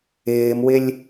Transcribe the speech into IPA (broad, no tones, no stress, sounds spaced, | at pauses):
ɪː m w ɪ lʲ